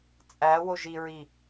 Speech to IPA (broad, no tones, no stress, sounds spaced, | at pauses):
t͡sʼ æ w o ʒ i ɹ i